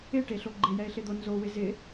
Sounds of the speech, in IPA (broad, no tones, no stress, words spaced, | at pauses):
ɪʈeɬo ɡ͡ǃɪjɛɪ̯ɬɪd̪o nzowɪ zɪ